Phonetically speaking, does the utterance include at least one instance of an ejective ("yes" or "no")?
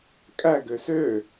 yes